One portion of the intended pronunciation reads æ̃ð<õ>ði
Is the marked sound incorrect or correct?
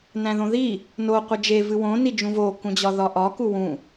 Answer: correct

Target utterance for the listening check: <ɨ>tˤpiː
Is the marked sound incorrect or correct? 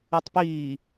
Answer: correct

